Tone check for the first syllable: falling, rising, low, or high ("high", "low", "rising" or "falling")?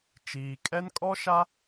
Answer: low